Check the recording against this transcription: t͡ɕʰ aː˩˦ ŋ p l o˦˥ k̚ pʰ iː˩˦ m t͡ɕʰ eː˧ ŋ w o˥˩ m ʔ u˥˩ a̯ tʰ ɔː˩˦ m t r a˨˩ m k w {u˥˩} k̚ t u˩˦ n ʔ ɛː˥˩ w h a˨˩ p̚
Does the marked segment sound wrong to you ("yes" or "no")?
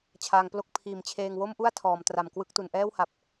yes